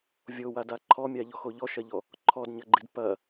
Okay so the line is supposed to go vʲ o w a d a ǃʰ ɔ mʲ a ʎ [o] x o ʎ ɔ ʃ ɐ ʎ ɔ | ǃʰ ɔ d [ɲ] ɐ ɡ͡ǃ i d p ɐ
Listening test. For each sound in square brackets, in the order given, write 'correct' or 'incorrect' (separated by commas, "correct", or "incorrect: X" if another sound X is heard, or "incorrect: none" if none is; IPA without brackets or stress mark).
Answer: incorrect: ɔ, correct